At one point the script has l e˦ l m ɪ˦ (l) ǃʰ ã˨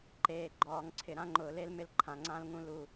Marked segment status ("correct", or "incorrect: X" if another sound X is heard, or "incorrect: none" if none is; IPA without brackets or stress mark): correct